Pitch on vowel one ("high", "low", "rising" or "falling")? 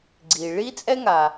low